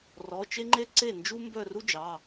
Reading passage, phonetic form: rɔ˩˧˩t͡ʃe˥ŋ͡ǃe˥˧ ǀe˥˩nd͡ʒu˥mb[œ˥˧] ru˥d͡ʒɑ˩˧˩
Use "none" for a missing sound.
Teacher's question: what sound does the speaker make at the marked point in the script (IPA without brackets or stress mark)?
œ˥˧